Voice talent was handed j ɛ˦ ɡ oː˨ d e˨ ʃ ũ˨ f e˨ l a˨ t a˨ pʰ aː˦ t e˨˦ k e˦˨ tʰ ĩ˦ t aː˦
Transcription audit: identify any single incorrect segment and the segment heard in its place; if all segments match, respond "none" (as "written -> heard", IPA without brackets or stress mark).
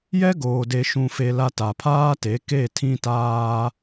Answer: none